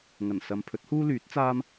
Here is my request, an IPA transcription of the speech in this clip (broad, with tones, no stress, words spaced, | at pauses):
ŋɐ˨˩nsɐ˨mpʰɵ˨˥t̚ huː˥lyː˨˥t̚t͡saː˥m